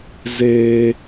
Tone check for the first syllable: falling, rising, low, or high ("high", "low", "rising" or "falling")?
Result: high